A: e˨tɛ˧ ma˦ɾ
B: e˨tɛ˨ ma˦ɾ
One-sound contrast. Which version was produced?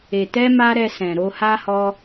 A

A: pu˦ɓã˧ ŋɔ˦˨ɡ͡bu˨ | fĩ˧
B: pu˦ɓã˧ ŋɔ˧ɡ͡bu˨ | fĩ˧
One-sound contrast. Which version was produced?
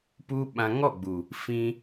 A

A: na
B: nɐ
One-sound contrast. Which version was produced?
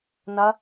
B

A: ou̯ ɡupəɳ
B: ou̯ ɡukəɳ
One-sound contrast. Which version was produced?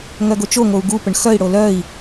A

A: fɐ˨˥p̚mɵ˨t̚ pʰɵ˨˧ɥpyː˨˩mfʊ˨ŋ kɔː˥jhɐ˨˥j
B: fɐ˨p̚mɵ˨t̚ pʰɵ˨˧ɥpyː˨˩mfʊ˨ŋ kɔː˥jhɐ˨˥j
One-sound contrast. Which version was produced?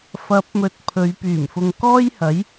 A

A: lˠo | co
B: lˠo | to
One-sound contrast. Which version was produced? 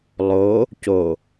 A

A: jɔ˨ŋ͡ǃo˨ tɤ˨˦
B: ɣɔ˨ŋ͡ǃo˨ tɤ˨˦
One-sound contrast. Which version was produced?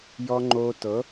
A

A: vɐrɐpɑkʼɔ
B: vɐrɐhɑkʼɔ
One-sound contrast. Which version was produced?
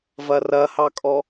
B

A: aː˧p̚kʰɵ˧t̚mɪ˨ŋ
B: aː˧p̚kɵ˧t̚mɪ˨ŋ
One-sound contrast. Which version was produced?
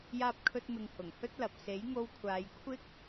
A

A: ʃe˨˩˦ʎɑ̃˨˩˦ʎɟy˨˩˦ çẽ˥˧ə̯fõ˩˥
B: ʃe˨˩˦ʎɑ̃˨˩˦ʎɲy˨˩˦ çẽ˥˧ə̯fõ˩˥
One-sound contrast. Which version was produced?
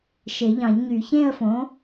B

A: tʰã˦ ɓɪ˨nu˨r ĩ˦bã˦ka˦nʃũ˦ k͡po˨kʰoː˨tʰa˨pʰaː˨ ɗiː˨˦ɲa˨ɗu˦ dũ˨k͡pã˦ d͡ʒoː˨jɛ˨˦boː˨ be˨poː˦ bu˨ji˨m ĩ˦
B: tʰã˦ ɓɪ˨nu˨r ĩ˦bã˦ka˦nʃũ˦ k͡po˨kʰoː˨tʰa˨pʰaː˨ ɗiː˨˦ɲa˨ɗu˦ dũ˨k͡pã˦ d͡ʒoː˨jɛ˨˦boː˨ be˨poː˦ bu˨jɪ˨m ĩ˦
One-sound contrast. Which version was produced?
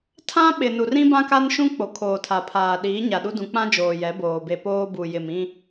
B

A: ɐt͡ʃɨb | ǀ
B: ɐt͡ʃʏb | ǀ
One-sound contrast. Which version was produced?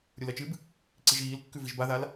A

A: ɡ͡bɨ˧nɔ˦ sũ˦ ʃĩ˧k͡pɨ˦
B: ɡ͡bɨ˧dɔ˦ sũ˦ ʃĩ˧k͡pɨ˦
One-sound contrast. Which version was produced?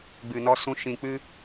A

